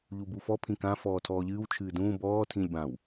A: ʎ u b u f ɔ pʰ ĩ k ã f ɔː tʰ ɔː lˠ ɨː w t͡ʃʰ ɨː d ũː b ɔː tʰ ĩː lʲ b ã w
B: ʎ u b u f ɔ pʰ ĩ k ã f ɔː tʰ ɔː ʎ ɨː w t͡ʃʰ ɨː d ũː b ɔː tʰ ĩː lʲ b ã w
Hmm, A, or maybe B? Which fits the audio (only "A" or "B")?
B